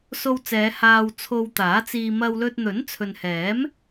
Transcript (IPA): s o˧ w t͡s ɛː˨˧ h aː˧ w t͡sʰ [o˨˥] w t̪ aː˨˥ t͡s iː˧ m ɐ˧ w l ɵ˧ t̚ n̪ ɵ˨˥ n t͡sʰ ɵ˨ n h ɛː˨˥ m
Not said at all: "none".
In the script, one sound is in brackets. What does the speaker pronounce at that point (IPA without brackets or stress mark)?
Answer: o˧